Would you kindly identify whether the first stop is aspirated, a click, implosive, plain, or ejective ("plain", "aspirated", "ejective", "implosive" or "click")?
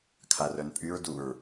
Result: aspirated